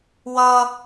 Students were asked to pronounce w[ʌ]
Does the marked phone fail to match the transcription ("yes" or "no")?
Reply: no